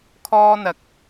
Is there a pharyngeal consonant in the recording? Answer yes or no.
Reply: no